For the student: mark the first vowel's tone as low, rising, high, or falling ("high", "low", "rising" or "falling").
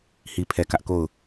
low